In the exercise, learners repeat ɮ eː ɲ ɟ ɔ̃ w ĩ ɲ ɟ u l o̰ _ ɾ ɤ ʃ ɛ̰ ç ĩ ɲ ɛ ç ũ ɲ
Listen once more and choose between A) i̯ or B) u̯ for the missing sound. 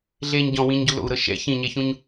B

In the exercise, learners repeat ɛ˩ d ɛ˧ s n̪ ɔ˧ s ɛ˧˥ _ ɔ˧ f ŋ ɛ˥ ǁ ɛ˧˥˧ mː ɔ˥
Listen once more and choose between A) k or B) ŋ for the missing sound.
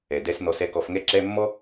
A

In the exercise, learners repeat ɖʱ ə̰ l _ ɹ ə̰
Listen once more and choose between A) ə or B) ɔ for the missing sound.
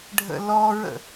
B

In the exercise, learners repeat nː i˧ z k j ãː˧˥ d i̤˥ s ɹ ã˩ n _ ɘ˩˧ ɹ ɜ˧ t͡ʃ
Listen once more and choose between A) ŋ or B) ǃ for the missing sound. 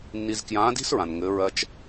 A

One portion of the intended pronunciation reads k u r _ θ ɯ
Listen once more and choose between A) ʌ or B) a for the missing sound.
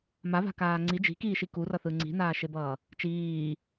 A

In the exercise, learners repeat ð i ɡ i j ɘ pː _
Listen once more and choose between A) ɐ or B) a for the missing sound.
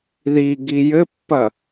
A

